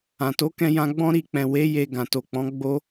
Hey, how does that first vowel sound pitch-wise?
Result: low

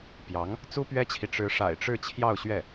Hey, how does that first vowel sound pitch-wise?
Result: rising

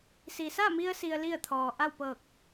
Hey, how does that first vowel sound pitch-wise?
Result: low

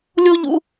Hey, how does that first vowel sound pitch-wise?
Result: high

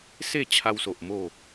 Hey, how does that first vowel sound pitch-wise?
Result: falling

